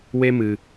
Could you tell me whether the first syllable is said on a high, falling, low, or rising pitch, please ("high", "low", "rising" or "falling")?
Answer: high